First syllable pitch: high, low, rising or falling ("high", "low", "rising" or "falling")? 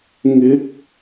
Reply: rising